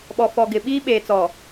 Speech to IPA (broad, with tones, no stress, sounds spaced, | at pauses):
ɓ ɔ˨ f ɔ˨ ɡ ɪ˨ ɓ iː˦ ɓ eː˨ t͡s ɔ˨